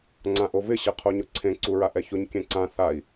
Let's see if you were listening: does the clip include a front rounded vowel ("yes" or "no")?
no